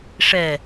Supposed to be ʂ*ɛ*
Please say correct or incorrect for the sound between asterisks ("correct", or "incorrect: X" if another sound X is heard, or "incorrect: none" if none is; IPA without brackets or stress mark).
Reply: correct